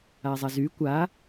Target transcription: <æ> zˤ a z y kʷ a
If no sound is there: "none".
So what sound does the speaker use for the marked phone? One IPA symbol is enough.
a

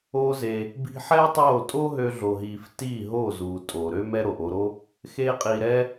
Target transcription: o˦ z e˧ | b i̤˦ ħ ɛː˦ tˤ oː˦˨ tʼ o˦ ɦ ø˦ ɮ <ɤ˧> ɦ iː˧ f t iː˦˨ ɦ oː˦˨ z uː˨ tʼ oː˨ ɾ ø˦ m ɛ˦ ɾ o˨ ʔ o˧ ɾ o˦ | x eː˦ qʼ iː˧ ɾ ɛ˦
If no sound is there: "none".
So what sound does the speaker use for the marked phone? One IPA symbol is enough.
o˧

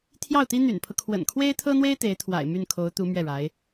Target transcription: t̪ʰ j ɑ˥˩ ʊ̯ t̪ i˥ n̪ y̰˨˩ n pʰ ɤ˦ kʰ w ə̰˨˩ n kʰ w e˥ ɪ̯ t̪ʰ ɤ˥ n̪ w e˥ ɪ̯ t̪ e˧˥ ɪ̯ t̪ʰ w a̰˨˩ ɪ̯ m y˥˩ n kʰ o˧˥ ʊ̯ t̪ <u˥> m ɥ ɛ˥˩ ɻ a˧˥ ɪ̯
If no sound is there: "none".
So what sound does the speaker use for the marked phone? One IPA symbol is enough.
u˧˥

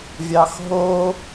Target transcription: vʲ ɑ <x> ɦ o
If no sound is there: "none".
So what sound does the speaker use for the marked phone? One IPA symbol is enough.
x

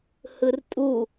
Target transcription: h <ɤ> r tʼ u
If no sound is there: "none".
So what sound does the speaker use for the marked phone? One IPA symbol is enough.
ɯ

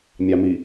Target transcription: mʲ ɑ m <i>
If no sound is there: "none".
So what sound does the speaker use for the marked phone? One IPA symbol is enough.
i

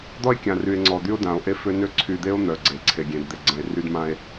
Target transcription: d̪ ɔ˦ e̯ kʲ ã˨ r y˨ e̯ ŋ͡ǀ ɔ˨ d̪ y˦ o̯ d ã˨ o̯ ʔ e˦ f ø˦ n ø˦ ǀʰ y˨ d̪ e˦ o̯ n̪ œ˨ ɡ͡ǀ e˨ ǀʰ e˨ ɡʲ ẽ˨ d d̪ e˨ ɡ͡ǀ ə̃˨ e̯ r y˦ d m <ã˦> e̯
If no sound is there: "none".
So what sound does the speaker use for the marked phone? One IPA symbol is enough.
ã˦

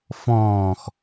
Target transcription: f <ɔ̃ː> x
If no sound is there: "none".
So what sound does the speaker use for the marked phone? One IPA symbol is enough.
ɔ̃ː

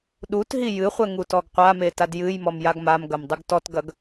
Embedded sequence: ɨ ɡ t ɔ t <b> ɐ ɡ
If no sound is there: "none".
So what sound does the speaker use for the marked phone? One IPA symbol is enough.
ɡ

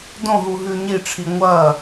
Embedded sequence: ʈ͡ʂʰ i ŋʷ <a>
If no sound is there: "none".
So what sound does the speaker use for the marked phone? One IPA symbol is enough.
ɐ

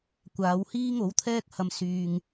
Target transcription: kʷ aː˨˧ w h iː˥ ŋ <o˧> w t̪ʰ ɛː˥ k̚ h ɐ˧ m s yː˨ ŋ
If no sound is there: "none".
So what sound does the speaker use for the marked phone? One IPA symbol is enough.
o˨˥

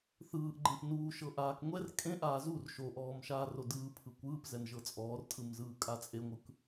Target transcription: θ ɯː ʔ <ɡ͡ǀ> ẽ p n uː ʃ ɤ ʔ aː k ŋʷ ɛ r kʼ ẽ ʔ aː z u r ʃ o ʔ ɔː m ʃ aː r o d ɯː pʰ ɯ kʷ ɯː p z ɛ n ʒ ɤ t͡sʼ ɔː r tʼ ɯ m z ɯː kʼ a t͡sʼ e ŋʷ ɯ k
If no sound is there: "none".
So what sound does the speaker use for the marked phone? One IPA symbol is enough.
ɡ͡ǃ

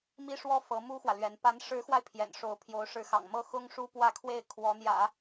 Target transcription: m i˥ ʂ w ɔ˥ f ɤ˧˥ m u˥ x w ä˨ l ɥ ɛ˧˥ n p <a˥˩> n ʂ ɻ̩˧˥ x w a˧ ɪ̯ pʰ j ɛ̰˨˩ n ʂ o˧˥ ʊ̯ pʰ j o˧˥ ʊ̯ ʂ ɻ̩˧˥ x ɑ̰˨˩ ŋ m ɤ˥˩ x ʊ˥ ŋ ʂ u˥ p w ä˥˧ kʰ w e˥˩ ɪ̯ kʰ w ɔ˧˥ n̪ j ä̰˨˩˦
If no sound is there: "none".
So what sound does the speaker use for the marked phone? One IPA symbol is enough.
a˧˥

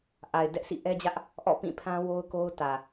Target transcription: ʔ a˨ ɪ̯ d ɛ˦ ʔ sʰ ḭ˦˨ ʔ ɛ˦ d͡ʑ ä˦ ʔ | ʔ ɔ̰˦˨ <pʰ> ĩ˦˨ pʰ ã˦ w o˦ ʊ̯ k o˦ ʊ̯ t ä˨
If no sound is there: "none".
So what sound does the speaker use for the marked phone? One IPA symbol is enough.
p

